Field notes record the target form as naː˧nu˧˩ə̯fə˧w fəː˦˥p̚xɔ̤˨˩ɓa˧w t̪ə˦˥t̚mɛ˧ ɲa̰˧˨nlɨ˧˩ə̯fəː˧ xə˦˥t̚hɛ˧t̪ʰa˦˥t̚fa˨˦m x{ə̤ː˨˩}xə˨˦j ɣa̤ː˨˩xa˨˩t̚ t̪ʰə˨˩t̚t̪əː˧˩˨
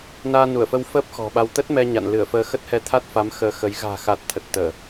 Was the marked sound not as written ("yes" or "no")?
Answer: yes